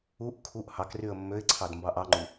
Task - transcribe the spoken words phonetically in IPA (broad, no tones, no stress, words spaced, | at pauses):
uʔ kʰuʔ hɑkryə̯ mːøɪ̯ǀʰɑd mbɑʔɑŋ͡ǃu